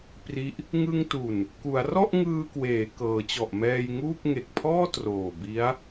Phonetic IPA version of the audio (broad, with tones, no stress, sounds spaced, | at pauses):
p r i˦˥ ʔ | ŋ ɯ˧ ŋ t u˨˩ n | k u˩˦ a̯ r ɔ˥˩ ʔ ŋ ɯː˧ k w eː˩˦ k ɤː˩˦ t͡ɕ ɔ˨˩ ʔ m ɛː˧ j ŋ uː˥˩ k̚ ŋ e˨˩ k̚ pʰ ɔː˥˩ t r oː˨˩ b i˦˥ a̯